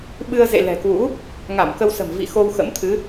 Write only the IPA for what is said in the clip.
ɓɨ˧ə̯zḛ˧˨ lɛ̤˨˩kwṵ˧˥ | ŋa˧˩mkə˧wsə̤˨˩m vḭ˧˨ xo˧wxə̰˧˥mt̪ʰɨ˨˦

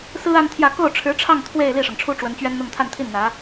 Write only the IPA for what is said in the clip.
sɹ̩˥ a˥nt̪ʰjä˥˧ ko˥˩ʊ̯ʈ͡ʂʰɻ̩˧˥ʈ͡ʂʰɑ˥˧ŋ t̪ʰwe˥˧ɪ̯ li˥˩ʂɤ˩ŋʈ͡ʂʰu˥ ʈ͡ʂwə˧˥nt͡ɕɥɛ˥nn̪ʊ˥˧ŋ t̪ʰa˥˧nt̪ʰi˥˩n n̪ä˧˥

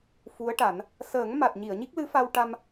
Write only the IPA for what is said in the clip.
fu˧˥ə̯ʈa˨˩˦n | səː˨˩˦ŋ ma˨˩t̚ɲi˨˩˨ə̯ ɲi˦˥k̚lɨ˧˥fa˧w ʈa˧m

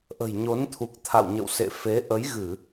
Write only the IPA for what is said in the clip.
ʔə̤˨˩jɲo˨˦nt̪ʰu˨˩k̚ t̪ʰa̰˧˨wɲə̰˧˨w sḛ˧˨fe˨˦ ʔə˨˦jɣɨ˧˩˨

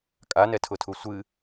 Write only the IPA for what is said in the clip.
kʼanɛtʰʊtʰu sʷɨ

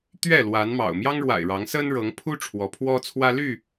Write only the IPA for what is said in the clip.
t̪ɥɛ˥˨lwa˨˦nmɑ̰˨˩ʊ̯ mjɑ˦ŋɻwa̰˨˩ɪ̯ ɻɑ˨˦ŋsə˦n ɻɤ˨˦ŋ pʰu˦ ʈ͡ʂʰwɔ˨˦pʰwɔ˦ t͡sʰwä˦ ly˥˨

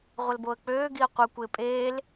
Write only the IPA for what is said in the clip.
ʁʷəlboə̯k͡pøː ɡiə̯qʷɯ kʷɪːpʼeːl

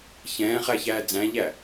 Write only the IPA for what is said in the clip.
çɛ̃ːχæçæː d͡zæ̃ʎæ

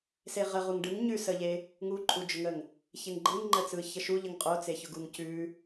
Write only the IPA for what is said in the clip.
seʁə ʁuŋɖɯŋ ɲʉsəʎe | ŋuǃʼud͡ʒʊŋəŋ | çeŋɡ͡ǃɯŋŋ͡ǃət͡sɯ çəʃuʎəŋ qʼot͡seçʊɡuŋ cʉ

